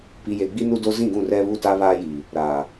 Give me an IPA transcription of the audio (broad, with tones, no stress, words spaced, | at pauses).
pi˨je˨ɡ͡bi˦ nu˦do˦ zĩ˦˨ɡũ˦˨rɛ˦ βu˦˨ta˦ βaː˦ji˨ | ɾaː˨